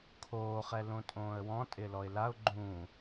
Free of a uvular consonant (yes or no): no